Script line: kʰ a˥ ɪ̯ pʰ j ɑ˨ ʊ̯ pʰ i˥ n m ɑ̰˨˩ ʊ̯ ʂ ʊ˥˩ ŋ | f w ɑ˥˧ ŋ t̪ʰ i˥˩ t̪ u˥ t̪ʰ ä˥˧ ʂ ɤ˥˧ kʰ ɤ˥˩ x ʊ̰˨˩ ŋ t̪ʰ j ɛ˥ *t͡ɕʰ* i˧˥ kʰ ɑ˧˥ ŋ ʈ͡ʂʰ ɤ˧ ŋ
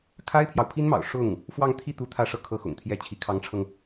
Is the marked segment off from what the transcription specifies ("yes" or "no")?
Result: no